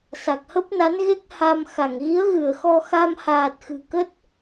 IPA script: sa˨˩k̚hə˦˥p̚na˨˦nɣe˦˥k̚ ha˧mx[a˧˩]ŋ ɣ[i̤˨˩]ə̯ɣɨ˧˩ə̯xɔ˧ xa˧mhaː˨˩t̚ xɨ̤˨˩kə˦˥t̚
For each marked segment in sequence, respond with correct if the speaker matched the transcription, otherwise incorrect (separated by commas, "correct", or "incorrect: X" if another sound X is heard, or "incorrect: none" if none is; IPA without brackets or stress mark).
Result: correct, incorrect: i˨˦